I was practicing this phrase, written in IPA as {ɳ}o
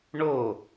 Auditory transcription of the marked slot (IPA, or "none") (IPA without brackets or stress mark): ɳ